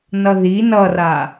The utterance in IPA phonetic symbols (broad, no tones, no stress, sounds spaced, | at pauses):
n ʌ ð i n ʌ r a